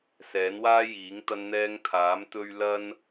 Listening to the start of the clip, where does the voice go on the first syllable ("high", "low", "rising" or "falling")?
rising